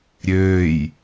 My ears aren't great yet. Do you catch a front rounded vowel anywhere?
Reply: yes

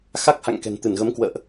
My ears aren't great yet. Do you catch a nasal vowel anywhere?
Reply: no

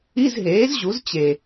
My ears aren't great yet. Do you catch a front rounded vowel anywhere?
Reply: no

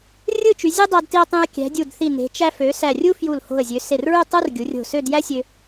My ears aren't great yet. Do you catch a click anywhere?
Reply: no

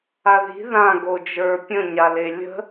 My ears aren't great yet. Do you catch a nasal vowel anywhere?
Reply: yes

